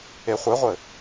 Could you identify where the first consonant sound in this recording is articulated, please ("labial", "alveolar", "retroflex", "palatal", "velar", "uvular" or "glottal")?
uvular